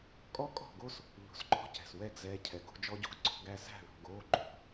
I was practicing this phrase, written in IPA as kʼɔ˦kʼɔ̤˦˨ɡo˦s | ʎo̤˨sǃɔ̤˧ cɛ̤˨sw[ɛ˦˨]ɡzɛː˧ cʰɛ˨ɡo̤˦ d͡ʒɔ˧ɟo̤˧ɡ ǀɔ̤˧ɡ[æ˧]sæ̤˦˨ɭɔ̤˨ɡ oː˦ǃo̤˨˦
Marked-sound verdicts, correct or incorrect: correct, correct

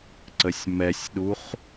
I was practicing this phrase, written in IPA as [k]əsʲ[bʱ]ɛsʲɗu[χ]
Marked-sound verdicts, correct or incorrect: incorrect, incorrect, correct

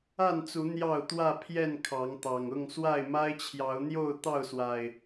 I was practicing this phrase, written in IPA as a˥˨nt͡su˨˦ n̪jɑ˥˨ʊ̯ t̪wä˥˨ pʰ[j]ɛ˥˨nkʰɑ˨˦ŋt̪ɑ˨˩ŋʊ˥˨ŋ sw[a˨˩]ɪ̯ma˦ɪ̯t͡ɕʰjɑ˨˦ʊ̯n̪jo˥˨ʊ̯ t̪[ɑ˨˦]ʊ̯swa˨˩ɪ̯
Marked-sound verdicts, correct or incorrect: correct, incorrect, incorrect

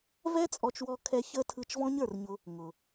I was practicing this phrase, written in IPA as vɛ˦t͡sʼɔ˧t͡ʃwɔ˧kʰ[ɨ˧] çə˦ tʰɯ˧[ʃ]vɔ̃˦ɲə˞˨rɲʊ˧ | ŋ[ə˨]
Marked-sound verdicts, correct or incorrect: incorrect, incorrect, incorrect

